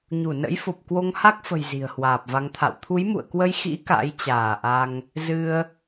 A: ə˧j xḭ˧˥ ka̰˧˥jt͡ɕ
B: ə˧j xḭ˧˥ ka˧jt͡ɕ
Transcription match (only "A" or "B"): A